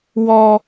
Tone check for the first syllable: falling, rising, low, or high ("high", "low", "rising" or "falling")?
high